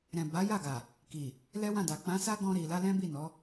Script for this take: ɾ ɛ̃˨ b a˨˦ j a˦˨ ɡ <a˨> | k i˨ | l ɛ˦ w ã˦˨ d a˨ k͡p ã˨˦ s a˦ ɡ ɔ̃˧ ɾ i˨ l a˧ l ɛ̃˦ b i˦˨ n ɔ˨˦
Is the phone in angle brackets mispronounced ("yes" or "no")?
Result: no